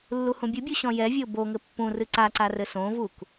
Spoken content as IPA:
lː u h ũ bʲ u bʲ u ɕ ɔ̃ j ɛ vʲ o b o ŋ ɘ pː ũ r ɨ ǀ a ǀ a r ɘ s õ v u k

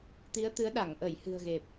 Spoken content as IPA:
t̪ i˨˦ ə̯ t̪ ɨ˨˦ ə̯ ɗ a˧˩ ŋ ʔ ə˧˩ j h ɨ̤˨˩ ə̯ ɣ e˨˩ p̚

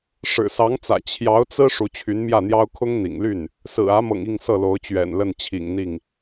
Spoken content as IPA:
ʂ ɻ̩˨˩ s ɑ˧˥ ŋ t͡s ä̰˨˩ t͡ɕʰ j ɑ˧˥ ʊ̯ t͡s ɹ̩˥ ʂ u˧˥ t͡ɕʰ y˧˥ n m j ä˥˩ n̪ j ɑ˥ ʊ̯ kʰ ʊ˥ ŋ n̪ ḭ˨˩ ŋ l y˥˩ n | s ɹ̩˨˩ ä˧˥ m ɤ̰˨˩ ŋ i˥˧ ŋ s ɤ˥˩ l o˧˥ ʊ̯ t͡ɕ ɥ ɛ̰˨˩ n l ə˥˩ n t͡ɕʰ ḭ˨˩ ŋ n̪ i˥˩ ŋ

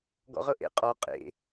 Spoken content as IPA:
ɡ ɔ̰ ʁ ɤ ʔ ḛ qʼ ɔ qʼ ḛ

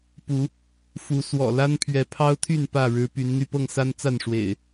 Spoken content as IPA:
p u˨˦ | f u˨˦ s w ɔ̰˨˩ l a˦ n pʰ ɥ ɛ˨˦ pʰ ɑ˦ ʊ̯ t̪ʰ y˥˨ n p ä˥˨ ɻ ɻ̩˨˦ p y˨˦ n n̪ y˧ p ɤ˥˨ ŋ s a˦ n t͡s a˥˨ n ʂ w ḛ˨˩ ɪ̯

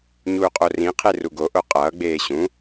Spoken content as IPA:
ɲ uː qʼ o r ĩ qʰ e r u ɡ o ʔ o qʼ ʌː ɡ͡b eː ɕ ũ

